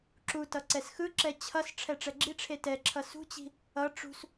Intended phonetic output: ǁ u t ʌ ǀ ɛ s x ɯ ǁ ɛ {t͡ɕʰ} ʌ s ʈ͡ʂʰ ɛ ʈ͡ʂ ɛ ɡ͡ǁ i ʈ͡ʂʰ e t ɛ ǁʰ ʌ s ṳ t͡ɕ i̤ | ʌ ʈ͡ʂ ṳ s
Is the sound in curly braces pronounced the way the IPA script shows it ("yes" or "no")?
yes